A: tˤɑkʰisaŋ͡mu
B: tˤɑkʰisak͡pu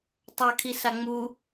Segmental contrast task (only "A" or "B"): A